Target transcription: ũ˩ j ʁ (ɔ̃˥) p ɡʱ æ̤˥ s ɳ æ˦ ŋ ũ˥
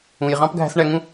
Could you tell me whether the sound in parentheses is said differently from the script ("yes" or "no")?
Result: yes